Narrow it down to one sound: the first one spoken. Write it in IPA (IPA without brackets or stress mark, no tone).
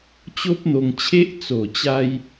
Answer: t͡ɕ